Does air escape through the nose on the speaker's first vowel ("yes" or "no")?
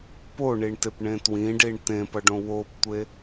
no